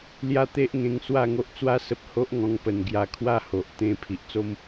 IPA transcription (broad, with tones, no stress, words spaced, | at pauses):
lja˥˧t̪e˦ʔŋẽ˧ŋ swa˥˧ŋo˦ʔt͡swa˦sə˦p̚ ho˦ʔŋɔ̃˧ŋpə˨˩n ɡja˧ kʰwa˥˧ho˨ʔ t̪ẽ˧ pʰi˨ʔt͡so˦m